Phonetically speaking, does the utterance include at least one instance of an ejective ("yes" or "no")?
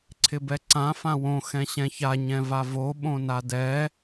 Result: no